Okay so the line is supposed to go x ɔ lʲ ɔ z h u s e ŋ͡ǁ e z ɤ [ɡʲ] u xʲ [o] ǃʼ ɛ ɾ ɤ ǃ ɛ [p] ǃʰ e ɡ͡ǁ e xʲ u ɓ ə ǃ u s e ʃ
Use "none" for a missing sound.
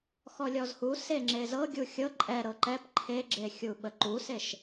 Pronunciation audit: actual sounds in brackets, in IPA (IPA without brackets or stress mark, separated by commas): ɡʲ, ɤ, p